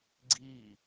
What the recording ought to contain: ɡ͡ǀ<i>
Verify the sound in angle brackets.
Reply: correct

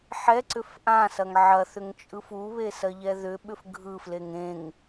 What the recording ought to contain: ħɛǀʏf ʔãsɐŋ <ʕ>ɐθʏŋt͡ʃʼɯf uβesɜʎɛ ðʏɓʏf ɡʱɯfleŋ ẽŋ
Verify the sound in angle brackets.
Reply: correct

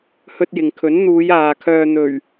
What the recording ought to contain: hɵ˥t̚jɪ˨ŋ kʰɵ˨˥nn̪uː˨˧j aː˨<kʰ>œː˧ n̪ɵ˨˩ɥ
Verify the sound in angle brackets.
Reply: correct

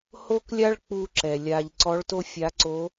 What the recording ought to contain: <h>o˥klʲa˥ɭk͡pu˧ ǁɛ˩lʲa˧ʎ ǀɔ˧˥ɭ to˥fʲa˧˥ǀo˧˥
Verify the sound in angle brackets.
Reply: correct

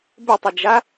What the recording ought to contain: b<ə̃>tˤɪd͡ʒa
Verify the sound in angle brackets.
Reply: incorrect: ə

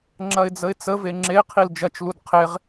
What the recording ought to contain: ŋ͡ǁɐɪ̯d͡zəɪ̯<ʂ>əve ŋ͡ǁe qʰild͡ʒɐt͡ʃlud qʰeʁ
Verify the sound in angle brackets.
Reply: incorrect: t͡s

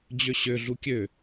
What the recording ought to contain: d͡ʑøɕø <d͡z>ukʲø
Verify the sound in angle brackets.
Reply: incorrect: ɮ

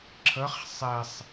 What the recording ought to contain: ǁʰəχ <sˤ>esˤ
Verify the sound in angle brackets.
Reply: correct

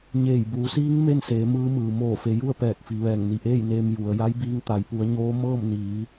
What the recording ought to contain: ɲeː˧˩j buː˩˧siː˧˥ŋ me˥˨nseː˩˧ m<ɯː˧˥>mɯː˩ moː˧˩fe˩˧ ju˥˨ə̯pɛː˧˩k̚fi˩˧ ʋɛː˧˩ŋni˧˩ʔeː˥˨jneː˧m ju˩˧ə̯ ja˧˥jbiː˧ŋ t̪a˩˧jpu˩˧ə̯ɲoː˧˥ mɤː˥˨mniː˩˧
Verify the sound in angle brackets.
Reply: correct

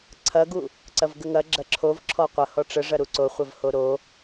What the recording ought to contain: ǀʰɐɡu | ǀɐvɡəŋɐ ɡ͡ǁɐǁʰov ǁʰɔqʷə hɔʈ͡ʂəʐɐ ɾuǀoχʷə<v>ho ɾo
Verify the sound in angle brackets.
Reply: correct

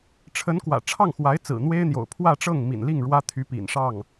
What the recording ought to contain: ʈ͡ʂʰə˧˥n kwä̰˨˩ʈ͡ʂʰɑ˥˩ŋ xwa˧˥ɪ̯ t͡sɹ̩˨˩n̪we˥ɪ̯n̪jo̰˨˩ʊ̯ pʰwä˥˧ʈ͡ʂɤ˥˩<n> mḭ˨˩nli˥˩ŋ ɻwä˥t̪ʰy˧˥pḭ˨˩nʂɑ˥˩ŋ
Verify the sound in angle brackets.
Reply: incorrect: ŋ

